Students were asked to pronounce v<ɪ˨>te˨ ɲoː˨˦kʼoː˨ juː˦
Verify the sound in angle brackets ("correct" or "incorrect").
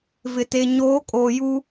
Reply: correct